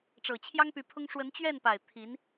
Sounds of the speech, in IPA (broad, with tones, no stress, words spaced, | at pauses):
ʈ͡ʂɤ˨˩t͡ɕʰjɑ˥ŋpy˧˥pʰʊ˥ŋ ʂwə˧˥nt͡ɕɥɛ˥˩npa˨˩ɪ̯ t̪ʰi˧˥n